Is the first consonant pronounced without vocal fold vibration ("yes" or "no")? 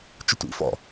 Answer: yes